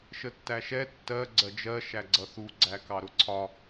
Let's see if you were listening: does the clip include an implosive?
no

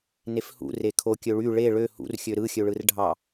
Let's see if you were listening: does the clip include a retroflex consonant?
yes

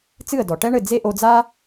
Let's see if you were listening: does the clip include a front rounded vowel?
no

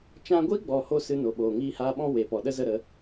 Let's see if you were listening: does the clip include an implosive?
yes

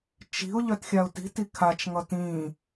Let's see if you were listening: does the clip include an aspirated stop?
yes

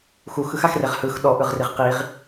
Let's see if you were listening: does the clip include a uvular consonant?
yes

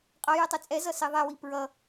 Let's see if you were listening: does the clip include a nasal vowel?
no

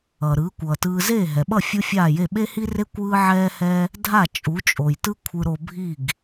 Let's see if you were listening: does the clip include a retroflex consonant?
no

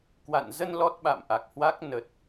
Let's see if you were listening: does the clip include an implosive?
yes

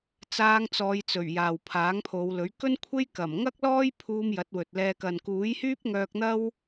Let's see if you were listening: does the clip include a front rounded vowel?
yes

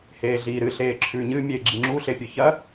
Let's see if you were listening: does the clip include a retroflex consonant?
no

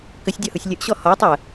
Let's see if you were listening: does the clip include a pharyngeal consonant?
no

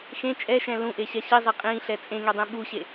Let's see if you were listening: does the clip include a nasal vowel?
yes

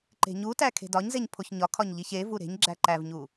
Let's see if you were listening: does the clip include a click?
yes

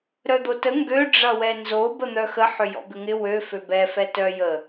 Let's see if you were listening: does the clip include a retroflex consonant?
yes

